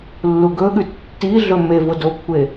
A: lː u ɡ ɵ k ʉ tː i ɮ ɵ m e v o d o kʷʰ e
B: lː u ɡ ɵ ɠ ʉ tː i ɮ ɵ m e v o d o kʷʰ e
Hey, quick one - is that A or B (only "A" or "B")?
B